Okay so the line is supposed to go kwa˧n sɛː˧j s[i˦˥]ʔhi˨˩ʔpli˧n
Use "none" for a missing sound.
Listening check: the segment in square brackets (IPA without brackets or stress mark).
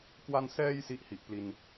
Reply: i˦˥